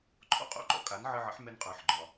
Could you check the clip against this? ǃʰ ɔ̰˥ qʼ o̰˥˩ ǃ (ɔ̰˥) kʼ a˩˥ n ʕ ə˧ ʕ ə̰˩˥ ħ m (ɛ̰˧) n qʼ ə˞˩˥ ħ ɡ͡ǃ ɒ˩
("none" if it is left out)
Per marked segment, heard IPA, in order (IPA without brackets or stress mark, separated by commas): ɔ̰˥, ɛ˧